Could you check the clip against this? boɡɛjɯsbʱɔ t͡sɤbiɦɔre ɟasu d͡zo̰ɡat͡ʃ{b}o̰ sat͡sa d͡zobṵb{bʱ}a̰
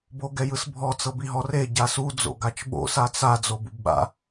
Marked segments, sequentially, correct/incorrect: incorrect, incorrect

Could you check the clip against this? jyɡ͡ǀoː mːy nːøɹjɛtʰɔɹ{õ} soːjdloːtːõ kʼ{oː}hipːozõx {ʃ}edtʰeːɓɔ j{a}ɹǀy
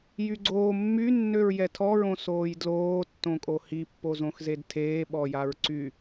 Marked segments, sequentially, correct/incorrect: correct, incorrect, incorrect, correct

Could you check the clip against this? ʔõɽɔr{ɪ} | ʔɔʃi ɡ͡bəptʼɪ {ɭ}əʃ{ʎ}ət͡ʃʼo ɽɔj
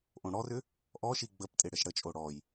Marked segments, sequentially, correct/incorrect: incorrect, incorrect, incorrect

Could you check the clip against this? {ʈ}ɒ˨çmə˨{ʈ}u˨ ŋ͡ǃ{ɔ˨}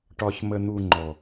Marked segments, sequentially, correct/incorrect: correct, incorrect, correct

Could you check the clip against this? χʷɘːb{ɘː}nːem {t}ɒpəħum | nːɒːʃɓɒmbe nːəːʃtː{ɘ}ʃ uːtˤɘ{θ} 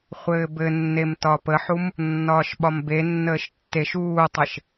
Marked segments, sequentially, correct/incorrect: incorrect, correct, incorrect, incorrect

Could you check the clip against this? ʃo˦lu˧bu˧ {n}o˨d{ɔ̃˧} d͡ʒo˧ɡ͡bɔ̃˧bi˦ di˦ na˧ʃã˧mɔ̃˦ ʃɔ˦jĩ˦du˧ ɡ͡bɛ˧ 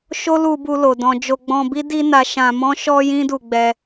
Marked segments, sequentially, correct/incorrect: incorrect, correct

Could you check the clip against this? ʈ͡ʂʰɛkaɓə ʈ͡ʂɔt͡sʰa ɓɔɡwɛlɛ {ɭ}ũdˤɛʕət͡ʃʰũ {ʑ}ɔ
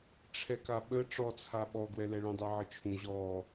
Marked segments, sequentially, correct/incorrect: correct, correct

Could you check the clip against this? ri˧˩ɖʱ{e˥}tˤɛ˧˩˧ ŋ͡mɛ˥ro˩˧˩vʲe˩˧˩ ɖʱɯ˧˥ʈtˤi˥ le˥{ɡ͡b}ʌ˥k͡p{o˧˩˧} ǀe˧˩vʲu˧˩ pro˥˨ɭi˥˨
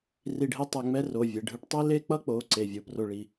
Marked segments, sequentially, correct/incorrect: correct, incorrect, incorrect

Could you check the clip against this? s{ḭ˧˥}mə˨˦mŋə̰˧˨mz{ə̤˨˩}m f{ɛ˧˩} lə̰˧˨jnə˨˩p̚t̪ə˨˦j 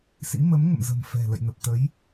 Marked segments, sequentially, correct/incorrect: correct, correct, incorrect

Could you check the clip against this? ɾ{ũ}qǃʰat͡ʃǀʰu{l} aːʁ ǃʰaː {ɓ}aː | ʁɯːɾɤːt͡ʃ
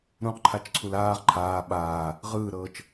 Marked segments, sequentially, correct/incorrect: correct, correct, correct

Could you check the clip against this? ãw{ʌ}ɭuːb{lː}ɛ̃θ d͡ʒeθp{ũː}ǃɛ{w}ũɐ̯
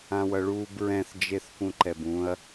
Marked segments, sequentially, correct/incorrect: correct, incorrect, incorrect, incorrect

